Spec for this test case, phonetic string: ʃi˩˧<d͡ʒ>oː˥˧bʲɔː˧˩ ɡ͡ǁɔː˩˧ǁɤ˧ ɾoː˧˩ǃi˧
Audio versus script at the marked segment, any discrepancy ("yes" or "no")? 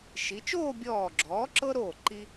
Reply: yes